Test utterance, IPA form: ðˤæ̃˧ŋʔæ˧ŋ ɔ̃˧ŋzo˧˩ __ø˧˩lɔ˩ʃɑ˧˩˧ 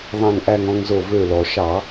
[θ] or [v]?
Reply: v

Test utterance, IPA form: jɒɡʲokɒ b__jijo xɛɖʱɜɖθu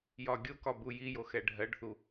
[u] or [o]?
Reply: u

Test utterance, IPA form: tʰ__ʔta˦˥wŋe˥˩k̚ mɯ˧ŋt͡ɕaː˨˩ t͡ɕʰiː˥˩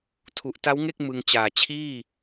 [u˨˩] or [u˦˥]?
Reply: u˨˩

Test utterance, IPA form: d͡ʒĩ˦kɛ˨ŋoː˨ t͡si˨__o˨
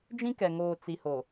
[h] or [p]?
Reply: h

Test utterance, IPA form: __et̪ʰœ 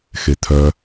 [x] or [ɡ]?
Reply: x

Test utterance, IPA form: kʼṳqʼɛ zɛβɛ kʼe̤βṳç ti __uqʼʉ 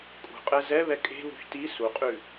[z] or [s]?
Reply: s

